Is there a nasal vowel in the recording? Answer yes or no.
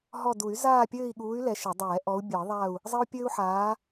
no